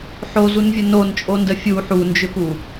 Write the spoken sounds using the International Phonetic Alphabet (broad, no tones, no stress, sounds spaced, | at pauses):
ħ o z u n vʲ ə n o n t͡ʃʼ o n d ə fʲ u ħ u n d͡ʒ ʏ p u